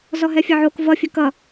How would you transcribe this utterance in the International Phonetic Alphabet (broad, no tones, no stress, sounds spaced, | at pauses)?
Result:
z ɔ ɦ ɛ fʲ ɐ ʕ o k v ʌ fʲ ɵ k ʌ